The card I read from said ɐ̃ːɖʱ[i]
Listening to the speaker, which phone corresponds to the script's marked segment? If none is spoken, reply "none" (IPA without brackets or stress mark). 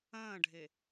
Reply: e